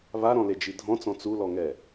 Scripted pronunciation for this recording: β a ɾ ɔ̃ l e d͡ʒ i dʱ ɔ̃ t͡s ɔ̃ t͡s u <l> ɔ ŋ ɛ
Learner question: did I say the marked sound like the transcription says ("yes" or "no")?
yes